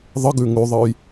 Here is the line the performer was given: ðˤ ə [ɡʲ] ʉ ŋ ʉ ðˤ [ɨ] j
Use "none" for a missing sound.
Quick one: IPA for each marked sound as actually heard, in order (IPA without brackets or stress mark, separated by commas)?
ɡ, ɨ